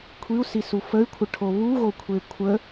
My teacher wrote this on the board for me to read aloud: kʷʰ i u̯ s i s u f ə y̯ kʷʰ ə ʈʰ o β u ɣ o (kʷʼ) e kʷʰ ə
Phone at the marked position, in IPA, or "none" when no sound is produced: kʷʰ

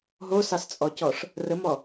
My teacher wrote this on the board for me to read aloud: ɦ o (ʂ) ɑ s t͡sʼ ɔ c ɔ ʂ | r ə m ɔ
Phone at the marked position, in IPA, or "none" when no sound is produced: s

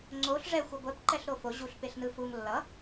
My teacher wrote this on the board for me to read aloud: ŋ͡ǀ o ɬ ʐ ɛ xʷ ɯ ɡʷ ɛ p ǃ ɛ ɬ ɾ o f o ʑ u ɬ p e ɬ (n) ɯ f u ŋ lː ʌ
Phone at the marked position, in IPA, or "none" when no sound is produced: n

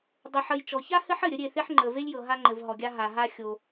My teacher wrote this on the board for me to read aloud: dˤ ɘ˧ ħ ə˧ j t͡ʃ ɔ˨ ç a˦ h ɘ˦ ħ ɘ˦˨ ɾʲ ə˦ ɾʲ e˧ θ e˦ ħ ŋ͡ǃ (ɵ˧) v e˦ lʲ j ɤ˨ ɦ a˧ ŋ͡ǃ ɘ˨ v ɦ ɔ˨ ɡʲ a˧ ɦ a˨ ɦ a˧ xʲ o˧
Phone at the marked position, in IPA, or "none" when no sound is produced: ə˧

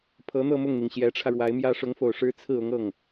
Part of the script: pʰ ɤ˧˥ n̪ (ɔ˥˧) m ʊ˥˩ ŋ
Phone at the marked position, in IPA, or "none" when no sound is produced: ɤ˥˧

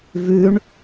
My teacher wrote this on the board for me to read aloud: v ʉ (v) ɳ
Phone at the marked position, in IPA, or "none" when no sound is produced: none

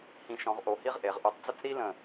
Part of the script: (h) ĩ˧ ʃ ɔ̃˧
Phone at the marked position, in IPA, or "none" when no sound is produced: h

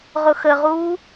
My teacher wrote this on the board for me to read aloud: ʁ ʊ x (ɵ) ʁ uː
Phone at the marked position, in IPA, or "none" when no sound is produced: ə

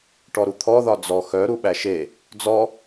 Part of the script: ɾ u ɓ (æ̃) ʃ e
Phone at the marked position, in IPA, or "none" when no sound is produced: æ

